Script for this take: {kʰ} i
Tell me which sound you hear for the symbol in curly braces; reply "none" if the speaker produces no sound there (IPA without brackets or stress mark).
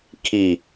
kʰ